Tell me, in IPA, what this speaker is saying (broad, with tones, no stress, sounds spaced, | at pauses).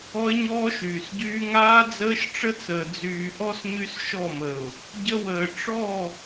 ɔ˦ ɪ̯ ɲ ɔː˦ ʃ yː˨ s ɟ yː˦ ŋ aː˦ d͡z əː˦ ʃ ʈ͡ʂ ə˦ t͡s əː˨ d͡z yː˨ ʔ ɔ˦ s ɲ y˦ s ʃ ɔ˦˨ m ə˨ ʊ̯ | ɟ ə˦ w əː˨ ʈ͡ʂ ɔ˦˨